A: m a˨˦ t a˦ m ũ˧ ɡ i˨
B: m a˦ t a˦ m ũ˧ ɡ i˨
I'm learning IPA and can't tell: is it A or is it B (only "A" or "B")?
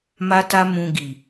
B